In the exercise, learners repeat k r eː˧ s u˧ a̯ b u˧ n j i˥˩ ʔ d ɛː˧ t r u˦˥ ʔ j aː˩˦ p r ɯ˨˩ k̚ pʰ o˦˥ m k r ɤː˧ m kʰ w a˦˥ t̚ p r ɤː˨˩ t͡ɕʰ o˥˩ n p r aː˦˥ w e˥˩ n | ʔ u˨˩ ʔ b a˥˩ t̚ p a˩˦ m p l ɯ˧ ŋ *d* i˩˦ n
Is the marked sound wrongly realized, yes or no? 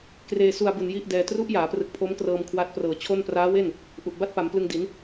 no